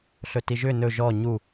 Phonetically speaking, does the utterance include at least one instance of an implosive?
no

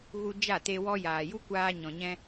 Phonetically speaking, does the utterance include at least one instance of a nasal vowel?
yes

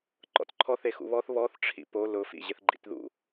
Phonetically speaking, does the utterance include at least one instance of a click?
yes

